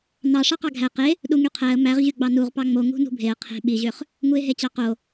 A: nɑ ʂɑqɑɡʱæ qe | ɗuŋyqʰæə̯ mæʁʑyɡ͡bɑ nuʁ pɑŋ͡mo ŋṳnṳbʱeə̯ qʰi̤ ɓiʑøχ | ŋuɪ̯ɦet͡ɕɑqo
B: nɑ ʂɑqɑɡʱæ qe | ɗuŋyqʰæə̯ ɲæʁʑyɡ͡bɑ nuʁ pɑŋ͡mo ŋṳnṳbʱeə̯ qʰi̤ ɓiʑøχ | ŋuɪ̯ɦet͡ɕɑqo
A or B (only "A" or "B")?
A